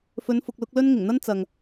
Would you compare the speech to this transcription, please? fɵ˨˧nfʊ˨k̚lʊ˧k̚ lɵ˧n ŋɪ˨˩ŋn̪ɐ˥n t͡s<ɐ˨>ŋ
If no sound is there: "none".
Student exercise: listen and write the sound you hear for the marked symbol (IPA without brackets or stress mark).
ɐ˨